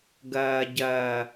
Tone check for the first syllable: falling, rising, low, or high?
low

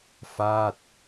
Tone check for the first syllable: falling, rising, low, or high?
falling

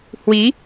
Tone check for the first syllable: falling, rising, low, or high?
rising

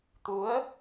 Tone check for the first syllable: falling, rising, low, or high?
rising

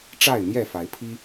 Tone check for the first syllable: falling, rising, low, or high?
falling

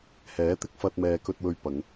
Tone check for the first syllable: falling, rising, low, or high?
rising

